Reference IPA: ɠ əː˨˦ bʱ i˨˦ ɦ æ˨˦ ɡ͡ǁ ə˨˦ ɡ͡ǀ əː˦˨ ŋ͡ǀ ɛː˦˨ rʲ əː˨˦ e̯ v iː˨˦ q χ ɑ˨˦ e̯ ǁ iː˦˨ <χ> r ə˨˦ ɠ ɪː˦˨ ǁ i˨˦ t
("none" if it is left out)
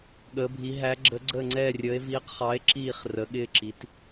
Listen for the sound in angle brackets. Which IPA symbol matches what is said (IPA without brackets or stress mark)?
χ